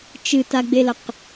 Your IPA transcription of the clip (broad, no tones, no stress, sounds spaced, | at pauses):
t͡ʃ ɨ t a ɡ͡b e l ɐ q